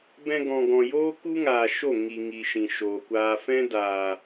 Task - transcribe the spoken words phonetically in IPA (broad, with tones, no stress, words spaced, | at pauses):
bɛ̃˧ɡɔ̃˨ɡɔ̃˨joː˦ ku˦ŋaː˨ ʃo˦˨ŋi˨ ŋi˨ʃĩ˨ ʃoː˨kʷaː˧ fɛ̃˦daː˨